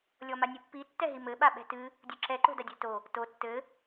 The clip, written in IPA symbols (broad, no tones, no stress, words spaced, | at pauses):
lʲɔmanʲɨpːi tːɛɦimɘ ɓaɓɛ̤tɨ | dʲuǁɛ ǃo̤dadʲɛ̤to | to tːɘ